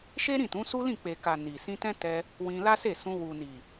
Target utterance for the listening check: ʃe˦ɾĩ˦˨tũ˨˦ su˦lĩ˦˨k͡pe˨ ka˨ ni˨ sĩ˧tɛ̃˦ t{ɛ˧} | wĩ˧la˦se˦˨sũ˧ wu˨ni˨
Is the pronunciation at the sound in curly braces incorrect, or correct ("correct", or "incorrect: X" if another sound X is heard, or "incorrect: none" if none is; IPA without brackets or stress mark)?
correct